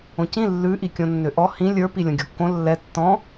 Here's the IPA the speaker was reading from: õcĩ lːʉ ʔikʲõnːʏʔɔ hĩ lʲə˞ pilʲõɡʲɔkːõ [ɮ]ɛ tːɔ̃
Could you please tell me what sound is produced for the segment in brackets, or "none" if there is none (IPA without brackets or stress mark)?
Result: lː